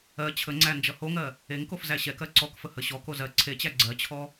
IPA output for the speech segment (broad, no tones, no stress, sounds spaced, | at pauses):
ɜ t͡ɕʰ ə ŋ͡ǀ æ n d͡ʒ ʌ h o ŋ ɜ | e ŋ k o f z æ ɕ ɛ k ɜ ǀ ɔ k f ə h ə ɕ ɔ k o z ɜ ǀʰ e t͡ɕ æ ɡ͡ǀ ɜ t͡ɕʰ ɔ